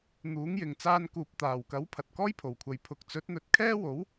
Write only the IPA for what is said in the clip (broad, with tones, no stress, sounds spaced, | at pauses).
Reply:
n̪ uː˨˥ ŋ j ɪ˨ ŋ t͡s aː˧ n k uː˨ p̚ t̪ aː˨˩ w k ɐ˨˥ w pʰ ɐ˨ t̚ k ɔː˥ j pʰ o˨˩ w kʷʰ ɐ˨ j pʰ ʊ˨ k̚ t͡s ɵ˨˥ t̚ n̪ ɵ˨˥ t̚ kʰ ɛː˥ w o˨˥ w